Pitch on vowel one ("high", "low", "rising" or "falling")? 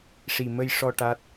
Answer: low